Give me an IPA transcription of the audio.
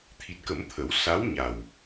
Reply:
t̪ʰ i˨˩ t̚ k ə˨˩˦ m t̪ʰ ə˨˩˦ w s a˧˥ w ɲ a˨˩ w

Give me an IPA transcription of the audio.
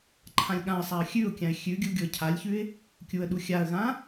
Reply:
ǃʰ ã lʲ ɠ ã ə̯ sˤ a ə̯ xʲ ʉ ʊ̯ kʲ ã ɪ̯ xʲ ʉ ɡʲ u ɡʲ o ə̯ cʰ a lʲ ç ʉ ɪ̯ | kʲ u ə̯ ɗ u xʲ a ə̯ ɣ ã

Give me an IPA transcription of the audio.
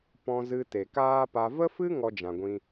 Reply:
p ɔ̃˧ z ɨ˧ t e˨ k aː˦ p a˧ v ə˦ f ɨ˦ ŋ ɔ˧ d͡ʒ ã˨ ɡʷ ĩ˧

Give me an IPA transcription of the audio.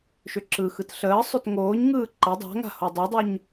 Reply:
ʃ ʏ ǁ ɯ x ɯ t ɬ əː sˤ ʏ t ŋ oː ɲ ŋ ɯː ǃ ɐ dˤ a̤ ŋ a̤ h o dˤ o dˤ o ɲ

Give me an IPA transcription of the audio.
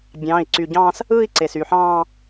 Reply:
bʲ ɑ̃ː˩˧˩ i̯ ǀ y˩ ɟ ɑ̃ː˥˧ s | ɯː˥˧ i̯ ǀ e˩ s y˩ ħ ɑ̃ː˥˧

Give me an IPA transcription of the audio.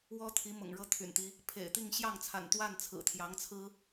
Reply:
w ɔ˥ t̪ʰ i˧˥ m ʊ̰˨˩ ŋ ɻ ɤ˥ t̪ʰ y̰˨˩ n t̪ i˦ | pʰ ḛ˨˩ ɪ̯ t̪ i˥˧ ŋ ɕ j ɑ˥˩ ŋ t͡sʰ a̰˨˩ n t̪ w a˥˩ n t͡sʰ ɹ̩˨˩ t̪ʰ j ɑ˧˥ ŋ t͡sʰ ɹ̩˥

